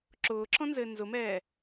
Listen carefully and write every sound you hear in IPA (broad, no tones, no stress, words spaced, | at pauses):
ǁʊːǁɔ̃nzɘː nzʊmɛː